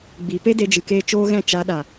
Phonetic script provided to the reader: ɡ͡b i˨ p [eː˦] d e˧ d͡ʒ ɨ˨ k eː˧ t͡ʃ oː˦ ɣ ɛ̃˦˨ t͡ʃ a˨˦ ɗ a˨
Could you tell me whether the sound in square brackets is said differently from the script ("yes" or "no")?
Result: yes